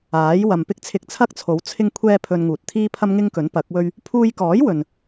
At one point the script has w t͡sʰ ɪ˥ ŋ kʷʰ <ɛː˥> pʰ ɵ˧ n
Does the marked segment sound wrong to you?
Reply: no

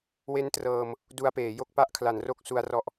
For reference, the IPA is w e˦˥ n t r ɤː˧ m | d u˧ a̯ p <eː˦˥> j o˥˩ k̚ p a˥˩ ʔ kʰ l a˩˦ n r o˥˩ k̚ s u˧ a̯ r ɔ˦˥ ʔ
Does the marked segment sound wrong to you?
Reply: yes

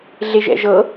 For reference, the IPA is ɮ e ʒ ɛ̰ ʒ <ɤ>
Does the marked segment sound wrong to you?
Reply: no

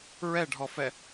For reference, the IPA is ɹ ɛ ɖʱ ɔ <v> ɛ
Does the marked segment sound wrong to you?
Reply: yes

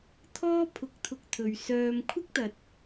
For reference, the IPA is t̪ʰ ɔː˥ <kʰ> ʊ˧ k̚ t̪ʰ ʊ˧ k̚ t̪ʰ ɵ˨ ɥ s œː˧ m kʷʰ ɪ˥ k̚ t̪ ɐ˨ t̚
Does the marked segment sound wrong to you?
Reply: yes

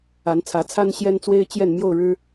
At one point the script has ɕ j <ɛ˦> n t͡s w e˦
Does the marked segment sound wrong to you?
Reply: no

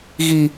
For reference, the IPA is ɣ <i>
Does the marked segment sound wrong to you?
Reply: no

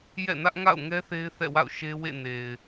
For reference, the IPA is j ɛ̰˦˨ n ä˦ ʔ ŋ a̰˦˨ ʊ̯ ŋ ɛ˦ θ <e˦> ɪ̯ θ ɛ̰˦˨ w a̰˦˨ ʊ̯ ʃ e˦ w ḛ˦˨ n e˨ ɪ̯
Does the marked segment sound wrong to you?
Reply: no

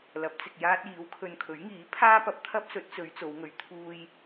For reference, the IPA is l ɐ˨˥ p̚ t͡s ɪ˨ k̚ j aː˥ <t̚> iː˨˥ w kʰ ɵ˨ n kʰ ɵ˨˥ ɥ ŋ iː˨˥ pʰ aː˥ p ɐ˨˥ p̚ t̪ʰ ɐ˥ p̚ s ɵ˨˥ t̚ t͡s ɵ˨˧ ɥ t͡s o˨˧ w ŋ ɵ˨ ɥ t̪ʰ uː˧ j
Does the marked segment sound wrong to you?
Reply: no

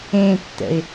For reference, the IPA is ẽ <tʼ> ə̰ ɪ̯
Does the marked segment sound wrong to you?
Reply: yes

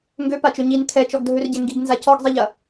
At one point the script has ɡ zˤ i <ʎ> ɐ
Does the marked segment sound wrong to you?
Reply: no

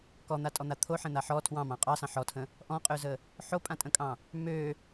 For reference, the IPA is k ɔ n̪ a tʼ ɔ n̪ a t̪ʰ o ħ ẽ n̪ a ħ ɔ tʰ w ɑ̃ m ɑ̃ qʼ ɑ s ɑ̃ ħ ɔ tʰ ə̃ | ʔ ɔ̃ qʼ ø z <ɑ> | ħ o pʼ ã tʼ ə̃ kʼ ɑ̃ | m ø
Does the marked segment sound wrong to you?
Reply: yes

